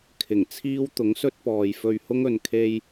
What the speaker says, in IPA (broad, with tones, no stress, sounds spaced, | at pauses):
kʰ ɪ˨˩ ŋ t͡sʰ iː˥ w t̪ ʊ˨˥ ŋ s ɵ˥ t̚ p ɔː˨ j f ɵ˧ ɥ h ʊ˥ ŋ ɵ˨ n kʰ e˧ j